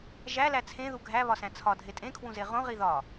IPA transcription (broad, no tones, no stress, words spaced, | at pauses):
ʒælæ t͡sʰẽðu ɡʱæβɒsæ̃ t͡sʰɒdʱe tʼẽkʰwũze ʁõʁi ðɒ